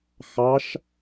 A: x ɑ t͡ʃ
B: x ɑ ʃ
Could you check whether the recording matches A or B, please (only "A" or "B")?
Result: B